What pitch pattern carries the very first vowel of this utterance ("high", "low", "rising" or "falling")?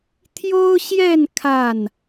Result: high